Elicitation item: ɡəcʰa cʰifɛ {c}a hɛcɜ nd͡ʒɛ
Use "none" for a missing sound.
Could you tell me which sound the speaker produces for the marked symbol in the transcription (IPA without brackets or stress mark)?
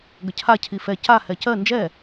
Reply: c